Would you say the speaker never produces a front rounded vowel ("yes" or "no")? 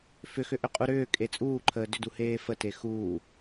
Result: no